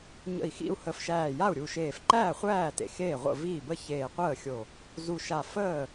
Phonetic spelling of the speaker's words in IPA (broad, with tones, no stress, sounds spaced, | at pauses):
ɲ ə̰˧˩ i̯ x ḭ˥˩ u̯ h ə˧˩ f ʃ æː˧˩ j a˥˩ u̯ ɾʲ u˧˩ ʃ eː˧˩ f ǃ æː˥˩ χʷ æː˥˩ t ḛ˧˩ x eː˥˩ ʁʷ ə̰˥˩ v iː˥˩ b ə˥˩ ç eː˧˩ qʷ əː˥˩ xʲ o˧˩ | z u˧˩ ʃ a˧˩ f əː˥˩